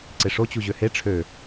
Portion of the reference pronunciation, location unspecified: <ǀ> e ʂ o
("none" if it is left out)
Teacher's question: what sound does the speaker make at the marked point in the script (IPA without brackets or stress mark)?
ǀ